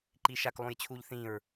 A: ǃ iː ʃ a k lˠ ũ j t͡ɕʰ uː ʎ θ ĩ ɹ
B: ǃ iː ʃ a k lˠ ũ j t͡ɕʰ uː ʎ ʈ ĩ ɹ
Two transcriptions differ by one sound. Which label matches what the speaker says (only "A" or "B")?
A